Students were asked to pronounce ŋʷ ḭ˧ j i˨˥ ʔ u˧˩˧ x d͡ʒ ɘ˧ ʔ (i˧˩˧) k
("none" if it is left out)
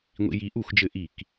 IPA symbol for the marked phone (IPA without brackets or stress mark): i˧˩˧